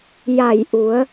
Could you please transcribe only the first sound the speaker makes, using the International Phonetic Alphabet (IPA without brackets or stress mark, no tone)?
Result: j